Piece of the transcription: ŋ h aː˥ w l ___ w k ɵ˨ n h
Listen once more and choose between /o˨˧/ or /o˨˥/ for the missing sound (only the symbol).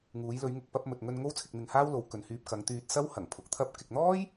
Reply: o˨˧